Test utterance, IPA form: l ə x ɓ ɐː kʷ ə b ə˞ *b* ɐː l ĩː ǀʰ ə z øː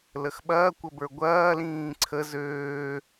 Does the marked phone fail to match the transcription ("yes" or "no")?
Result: yes